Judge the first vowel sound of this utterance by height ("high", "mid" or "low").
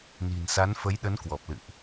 high